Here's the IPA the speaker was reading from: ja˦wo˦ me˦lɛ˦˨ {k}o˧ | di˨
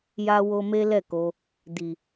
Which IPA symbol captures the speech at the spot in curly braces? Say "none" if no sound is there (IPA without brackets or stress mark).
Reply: k